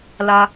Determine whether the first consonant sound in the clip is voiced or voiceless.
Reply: voiced